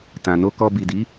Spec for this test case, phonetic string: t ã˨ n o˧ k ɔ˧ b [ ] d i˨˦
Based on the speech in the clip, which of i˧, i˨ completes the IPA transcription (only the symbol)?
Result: i˨